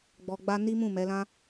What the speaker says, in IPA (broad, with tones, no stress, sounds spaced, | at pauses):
ɡ͡b ɔ˧ ɡ͡b a˦ n i˦ m ũ˦˨ m ɛ˨˦ l ã˦